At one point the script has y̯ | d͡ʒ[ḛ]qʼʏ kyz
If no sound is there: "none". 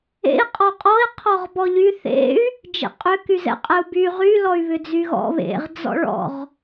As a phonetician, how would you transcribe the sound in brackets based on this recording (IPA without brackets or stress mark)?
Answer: ḛ